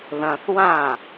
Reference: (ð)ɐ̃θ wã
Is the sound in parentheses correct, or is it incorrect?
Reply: correct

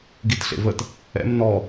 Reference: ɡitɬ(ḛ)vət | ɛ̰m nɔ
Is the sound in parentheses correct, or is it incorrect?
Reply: correct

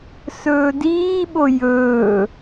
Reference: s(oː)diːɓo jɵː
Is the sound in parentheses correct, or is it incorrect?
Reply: incorrect: ɵː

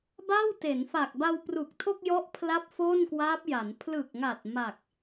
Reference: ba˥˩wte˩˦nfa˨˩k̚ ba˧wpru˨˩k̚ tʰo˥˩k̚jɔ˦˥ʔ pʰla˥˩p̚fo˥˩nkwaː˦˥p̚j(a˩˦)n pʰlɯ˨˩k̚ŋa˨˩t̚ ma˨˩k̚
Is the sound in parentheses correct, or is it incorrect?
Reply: correct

